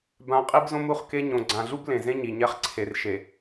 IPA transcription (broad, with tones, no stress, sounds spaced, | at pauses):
b ã˨ qʼ i˦ b z õ˦ m u˦˨ χ k e˦ ɲ õ˨ ɡ͡ǀ ã˨ ɮ u˦ b l ẽ˨ z ẽ˦ ɲ i˨ ɲ ɛ˦ χ ǀʰ e˨ r ʃ e˨